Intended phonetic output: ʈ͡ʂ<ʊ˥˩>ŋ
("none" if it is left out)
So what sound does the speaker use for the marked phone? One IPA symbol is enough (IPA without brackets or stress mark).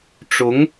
ʊ˧˥